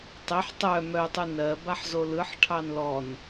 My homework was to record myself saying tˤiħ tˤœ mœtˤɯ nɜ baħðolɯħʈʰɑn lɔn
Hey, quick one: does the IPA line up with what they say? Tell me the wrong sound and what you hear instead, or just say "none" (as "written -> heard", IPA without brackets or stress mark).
ð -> z